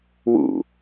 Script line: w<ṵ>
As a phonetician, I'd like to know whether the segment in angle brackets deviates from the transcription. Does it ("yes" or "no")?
no